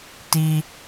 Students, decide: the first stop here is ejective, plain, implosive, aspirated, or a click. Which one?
plain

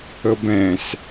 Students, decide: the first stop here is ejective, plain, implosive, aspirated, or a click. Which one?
plain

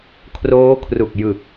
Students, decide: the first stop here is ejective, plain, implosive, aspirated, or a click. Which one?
aspirated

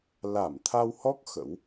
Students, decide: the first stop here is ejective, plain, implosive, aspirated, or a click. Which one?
aspirated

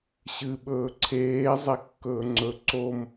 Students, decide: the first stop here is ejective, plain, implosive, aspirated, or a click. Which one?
implosive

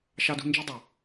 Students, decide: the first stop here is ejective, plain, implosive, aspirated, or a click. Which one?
plain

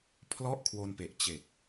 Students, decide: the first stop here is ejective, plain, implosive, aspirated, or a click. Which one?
aspirated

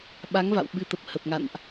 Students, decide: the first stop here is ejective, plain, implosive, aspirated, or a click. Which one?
implosive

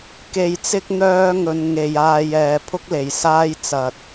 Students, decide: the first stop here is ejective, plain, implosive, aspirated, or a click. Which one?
plain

